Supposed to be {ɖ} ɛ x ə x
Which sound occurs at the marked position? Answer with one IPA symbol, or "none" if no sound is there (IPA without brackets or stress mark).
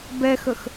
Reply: b